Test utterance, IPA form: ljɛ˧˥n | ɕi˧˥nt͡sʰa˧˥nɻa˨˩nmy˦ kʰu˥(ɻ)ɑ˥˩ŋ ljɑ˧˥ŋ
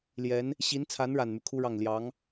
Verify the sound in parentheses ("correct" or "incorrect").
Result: correct